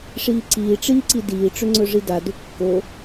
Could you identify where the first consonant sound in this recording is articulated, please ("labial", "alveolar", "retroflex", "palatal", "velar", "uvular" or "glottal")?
retroflex